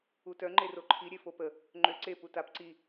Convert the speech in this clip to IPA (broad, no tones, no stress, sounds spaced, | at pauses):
u t œ ŋ͡ǃ e r o ǃʰ i ɾʲ e f o p ə | ŋ͡ǃ ø ǀ e p u t a p ǀ i